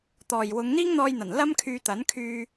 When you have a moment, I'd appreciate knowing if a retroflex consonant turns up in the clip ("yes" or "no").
no